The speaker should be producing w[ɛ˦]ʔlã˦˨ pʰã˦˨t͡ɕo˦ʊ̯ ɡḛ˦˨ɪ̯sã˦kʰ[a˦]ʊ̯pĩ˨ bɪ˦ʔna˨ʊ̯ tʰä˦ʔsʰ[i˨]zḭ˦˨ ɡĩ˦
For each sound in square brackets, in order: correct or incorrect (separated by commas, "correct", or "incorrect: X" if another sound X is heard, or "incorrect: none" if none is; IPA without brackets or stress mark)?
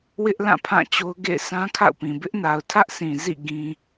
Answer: incorrect: ɪ˦, incorrect: a̰˦˨, incorrect: ĩ˨